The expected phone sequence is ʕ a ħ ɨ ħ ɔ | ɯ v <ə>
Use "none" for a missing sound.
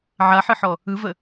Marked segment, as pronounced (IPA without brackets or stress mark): ə